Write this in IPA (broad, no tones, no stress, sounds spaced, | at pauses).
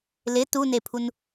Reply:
l ɪ t u n e pʰ u n